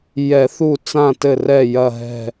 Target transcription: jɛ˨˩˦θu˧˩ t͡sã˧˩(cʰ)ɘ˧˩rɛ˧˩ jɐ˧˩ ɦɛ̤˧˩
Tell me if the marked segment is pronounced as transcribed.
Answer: no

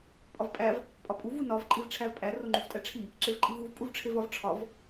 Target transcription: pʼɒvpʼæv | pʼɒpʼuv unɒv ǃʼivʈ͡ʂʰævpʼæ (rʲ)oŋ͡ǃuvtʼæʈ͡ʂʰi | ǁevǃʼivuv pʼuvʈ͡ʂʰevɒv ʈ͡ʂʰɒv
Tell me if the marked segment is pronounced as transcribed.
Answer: no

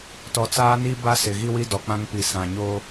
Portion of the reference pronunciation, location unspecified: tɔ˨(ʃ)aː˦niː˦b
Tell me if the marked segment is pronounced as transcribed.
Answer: no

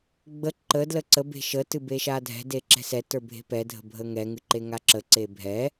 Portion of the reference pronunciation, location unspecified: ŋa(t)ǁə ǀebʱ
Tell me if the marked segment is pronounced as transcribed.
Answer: no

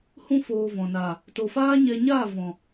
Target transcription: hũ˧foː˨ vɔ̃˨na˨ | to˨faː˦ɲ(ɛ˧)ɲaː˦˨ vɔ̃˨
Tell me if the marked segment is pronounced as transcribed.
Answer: yes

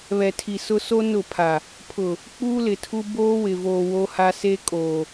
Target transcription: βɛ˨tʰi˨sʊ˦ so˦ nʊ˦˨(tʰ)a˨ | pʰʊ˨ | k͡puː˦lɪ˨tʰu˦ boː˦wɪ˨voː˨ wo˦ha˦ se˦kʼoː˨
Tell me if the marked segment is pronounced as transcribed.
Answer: no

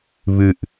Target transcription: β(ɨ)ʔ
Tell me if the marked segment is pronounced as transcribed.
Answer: yes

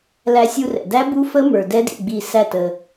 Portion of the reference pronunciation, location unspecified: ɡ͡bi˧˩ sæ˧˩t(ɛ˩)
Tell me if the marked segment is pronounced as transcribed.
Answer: no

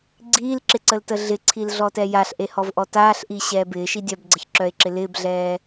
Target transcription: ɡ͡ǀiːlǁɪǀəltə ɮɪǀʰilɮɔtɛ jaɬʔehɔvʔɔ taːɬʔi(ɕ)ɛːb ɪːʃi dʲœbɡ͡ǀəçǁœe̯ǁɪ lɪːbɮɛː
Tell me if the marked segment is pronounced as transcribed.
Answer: yes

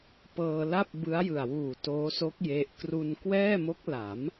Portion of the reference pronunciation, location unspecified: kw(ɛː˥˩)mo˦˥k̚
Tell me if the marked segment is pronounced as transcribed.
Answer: yes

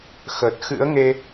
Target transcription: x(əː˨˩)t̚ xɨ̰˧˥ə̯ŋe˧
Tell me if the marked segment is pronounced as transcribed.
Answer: no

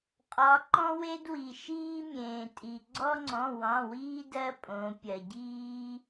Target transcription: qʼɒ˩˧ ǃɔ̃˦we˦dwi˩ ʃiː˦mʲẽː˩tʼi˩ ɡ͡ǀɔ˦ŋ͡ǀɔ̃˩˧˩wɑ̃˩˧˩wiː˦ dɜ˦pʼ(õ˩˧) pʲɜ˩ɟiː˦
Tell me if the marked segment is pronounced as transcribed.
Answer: yes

